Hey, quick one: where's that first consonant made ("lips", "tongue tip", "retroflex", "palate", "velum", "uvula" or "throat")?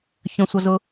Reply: palate